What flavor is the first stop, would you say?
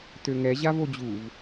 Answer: plain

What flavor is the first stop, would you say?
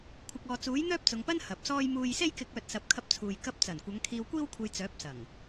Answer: aspirated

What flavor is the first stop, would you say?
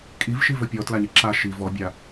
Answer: ejective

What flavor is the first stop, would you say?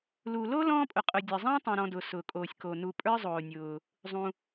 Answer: ejective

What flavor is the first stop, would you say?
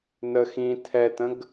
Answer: aspirated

